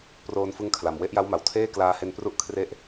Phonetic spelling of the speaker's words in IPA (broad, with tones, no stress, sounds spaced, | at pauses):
p r oː˧ n f ɯ˦˥ ŋ kʰ l a˨˩ m w e˦˥ ʔ j a˦˥ w m a˩˦ w tʰ eː˥˩ k l aː˧ h e˧ n p r u˥˩ ʔ kʰ r e˦˥ ʔ